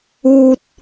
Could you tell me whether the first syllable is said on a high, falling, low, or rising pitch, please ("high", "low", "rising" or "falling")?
high